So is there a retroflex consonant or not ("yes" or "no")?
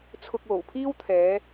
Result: no